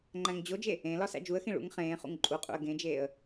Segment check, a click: present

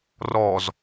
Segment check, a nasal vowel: absent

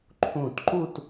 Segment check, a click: present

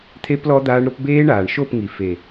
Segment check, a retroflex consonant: present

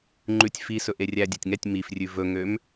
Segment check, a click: present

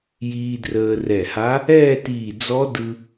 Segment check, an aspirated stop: absent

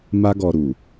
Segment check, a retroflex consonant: absent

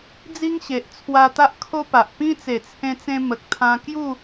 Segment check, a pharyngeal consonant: absent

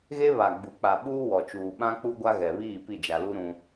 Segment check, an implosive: present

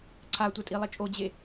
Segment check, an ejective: present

